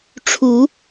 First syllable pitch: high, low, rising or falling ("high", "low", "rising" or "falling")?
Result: rising